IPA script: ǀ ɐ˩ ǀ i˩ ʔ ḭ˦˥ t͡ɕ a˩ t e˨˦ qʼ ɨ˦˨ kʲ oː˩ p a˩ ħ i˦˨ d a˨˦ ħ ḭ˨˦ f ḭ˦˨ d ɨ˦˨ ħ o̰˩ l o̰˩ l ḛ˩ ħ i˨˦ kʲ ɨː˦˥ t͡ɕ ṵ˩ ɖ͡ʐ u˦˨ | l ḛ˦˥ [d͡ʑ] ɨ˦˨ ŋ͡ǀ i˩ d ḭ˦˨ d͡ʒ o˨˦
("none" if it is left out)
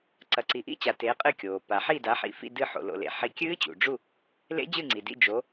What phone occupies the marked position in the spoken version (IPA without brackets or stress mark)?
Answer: d͡ʑ